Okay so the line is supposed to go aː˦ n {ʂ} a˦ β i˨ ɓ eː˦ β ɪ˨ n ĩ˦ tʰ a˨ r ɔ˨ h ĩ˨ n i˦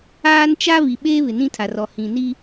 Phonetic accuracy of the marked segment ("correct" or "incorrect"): incorrect